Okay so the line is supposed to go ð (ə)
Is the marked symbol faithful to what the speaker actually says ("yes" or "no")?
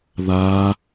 no